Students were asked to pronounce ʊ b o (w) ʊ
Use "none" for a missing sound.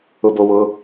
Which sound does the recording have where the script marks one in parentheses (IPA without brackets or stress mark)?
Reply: w